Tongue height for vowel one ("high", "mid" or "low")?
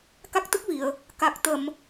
low